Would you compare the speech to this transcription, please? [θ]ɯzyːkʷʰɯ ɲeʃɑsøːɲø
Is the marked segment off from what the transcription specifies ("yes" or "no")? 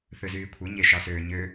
no